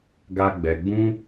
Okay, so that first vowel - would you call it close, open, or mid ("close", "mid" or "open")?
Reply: open